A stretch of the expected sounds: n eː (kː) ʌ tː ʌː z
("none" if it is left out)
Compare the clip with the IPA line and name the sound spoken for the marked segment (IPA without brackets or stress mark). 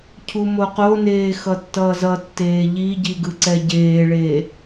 x